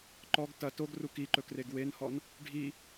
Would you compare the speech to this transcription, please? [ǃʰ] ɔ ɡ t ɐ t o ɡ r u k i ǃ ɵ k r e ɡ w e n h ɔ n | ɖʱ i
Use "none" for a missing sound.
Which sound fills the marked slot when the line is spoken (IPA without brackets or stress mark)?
ǃ